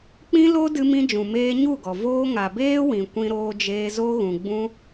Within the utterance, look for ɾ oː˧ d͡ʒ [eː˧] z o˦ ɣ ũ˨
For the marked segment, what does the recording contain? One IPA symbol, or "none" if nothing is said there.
eː˧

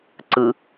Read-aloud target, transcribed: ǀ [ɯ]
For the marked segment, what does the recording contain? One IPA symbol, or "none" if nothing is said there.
ɯ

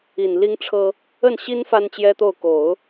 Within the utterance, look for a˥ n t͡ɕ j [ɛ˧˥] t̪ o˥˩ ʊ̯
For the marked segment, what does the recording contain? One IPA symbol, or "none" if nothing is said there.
ɛ˥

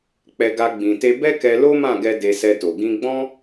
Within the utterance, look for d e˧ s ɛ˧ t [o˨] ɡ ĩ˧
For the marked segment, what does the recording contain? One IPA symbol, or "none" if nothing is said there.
o˨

